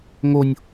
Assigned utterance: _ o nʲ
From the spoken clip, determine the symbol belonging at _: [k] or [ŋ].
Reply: ŋ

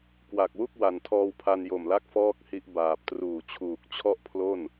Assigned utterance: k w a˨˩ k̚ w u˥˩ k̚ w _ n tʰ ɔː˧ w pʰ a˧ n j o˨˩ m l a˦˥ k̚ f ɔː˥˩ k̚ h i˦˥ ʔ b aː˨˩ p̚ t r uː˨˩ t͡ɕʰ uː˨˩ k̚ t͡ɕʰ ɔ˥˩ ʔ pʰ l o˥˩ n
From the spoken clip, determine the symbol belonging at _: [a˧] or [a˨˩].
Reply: a˨˩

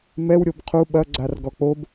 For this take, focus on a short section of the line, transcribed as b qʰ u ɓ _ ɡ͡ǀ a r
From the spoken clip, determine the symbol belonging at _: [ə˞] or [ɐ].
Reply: ɐ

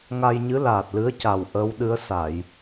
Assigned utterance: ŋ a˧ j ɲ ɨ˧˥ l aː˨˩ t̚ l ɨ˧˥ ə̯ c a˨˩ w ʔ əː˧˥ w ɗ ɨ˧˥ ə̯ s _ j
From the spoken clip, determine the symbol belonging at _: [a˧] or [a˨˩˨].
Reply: a˨˩˨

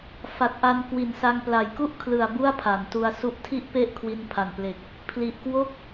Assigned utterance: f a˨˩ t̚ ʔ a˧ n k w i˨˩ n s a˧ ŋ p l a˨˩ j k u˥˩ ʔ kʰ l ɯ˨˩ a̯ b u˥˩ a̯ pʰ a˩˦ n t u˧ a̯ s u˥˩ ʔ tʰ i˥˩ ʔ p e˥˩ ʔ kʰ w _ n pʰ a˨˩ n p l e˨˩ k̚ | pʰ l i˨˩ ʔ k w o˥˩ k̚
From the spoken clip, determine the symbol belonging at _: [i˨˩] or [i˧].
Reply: i˧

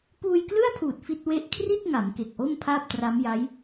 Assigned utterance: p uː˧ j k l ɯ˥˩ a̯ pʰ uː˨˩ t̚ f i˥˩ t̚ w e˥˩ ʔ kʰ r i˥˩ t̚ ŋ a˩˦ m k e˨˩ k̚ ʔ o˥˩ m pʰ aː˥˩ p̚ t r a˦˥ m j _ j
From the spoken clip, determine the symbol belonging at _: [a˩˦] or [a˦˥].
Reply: a˦˥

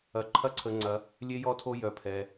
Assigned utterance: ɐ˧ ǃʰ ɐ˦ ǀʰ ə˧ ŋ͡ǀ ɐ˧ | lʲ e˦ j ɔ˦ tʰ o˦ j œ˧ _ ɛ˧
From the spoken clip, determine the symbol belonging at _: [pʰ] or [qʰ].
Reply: pʰ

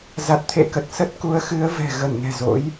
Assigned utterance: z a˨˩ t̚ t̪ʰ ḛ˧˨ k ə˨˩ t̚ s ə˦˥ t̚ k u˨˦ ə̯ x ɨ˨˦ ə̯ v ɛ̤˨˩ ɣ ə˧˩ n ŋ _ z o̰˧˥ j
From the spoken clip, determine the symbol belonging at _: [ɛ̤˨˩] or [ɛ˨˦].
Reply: ɛ̤˨˩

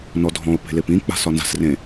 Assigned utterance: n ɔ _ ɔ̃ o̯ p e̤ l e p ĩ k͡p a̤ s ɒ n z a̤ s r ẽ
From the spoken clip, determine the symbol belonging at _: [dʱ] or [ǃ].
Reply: dʱ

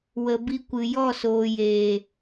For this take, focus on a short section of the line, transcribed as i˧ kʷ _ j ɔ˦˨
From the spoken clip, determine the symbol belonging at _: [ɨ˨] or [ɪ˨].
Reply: ɨ˨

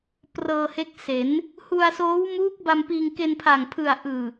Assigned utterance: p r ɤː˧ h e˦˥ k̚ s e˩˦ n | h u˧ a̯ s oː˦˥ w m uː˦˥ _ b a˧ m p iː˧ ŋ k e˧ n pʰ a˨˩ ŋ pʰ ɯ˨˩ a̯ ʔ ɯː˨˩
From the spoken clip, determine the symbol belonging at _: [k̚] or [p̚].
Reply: k̚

